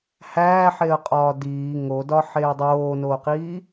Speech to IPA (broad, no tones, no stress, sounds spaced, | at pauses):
h æː ħ e ə̯ qʼ ɒː d iː ŋ o d ɒ ħ eː dˤ oː n oː q iː